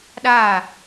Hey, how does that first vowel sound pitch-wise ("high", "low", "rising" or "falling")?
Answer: falling